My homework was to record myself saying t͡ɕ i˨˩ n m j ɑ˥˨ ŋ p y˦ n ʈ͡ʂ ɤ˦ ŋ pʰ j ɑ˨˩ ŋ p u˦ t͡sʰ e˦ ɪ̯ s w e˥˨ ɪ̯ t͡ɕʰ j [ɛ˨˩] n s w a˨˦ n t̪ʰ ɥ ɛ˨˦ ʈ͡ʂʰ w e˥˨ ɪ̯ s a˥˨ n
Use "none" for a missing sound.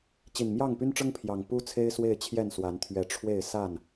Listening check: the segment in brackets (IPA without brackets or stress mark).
ɛ˥˨